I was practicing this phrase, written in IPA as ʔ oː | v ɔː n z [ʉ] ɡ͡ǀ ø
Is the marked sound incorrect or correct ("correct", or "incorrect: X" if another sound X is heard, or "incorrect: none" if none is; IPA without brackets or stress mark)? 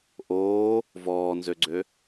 incorrect: ø